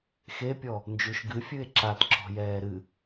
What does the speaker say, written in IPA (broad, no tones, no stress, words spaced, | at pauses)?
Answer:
xepʲɔ | nd͡ʒuʃɡɨfʲɨe̯ ǁat ǁɔ̤jɛːɾɨ